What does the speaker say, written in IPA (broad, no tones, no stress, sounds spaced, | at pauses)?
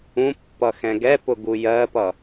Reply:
ũ pː ʌ x ɛ̃ ɡ ɛ p ʊ ɡ u j ɜ p ʌ